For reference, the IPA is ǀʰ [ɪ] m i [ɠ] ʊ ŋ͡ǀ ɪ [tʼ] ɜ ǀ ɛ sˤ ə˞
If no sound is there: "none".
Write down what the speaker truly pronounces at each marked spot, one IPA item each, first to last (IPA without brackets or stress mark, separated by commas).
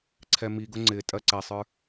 ɛ, ɡ, tʼ